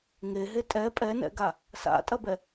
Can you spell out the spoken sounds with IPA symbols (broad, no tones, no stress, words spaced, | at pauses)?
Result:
ŋeɦe tʼɛ pʼɛnɛ̰ɡa | sa̰tʼɐbɛ